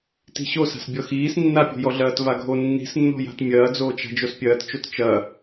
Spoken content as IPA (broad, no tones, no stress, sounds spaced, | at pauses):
t i̤ ɕ o s a̤ s bʲ ɔ x iː s nː a pʲ o̤ j ɔ ɮ ɐː t v a ɡʱ o nː i̤ s nː ɔ̤ j a̤ t mʲ ɐː d͡z oː t͡ʃ a̤ d͡ʒ o s pʲ ɐː t t͡ʃ o t t͡ʃ ɐ